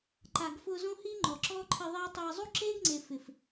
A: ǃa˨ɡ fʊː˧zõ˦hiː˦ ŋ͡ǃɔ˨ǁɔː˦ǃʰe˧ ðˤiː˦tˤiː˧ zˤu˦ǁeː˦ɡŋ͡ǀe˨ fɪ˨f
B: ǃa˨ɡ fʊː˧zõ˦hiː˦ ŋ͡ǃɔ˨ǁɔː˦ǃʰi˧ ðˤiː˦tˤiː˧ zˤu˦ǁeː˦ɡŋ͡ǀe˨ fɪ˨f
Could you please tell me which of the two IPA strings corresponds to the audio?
B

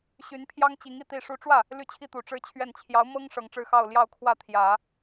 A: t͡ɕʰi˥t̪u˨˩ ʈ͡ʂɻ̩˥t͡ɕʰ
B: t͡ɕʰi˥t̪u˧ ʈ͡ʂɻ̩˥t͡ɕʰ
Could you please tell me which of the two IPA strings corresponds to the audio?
A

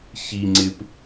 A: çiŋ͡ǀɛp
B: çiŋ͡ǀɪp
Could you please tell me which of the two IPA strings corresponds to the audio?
B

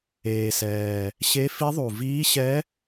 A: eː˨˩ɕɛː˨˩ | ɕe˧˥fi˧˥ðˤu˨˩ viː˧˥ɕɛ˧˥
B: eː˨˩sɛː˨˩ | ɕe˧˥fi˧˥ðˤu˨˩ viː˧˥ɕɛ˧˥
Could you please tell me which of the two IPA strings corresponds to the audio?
B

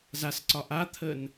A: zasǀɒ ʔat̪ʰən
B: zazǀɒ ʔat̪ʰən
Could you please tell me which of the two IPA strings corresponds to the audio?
A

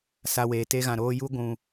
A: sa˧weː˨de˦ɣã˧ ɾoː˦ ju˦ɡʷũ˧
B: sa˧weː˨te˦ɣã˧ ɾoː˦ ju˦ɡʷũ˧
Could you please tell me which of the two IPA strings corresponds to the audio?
B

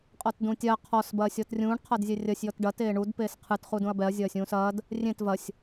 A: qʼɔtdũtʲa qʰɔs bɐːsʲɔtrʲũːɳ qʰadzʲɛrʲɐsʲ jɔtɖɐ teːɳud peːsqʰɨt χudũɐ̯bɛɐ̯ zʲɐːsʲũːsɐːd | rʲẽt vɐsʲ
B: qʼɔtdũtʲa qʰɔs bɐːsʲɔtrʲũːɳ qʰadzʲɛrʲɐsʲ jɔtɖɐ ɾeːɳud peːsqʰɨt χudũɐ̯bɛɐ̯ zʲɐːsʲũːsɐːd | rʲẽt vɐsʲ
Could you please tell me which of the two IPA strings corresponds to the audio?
A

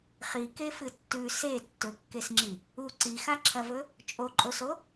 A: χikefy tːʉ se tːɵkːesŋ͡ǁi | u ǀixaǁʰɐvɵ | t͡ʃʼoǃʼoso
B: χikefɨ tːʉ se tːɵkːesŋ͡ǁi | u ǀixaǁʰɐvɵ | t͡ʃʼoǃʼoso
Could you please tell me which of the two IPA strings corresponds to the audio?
B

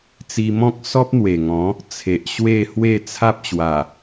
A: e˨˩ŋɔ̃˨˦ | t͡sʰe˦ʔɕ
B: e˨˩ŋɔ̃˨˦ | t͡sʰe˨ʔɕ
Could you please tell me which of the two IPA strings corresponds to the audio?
B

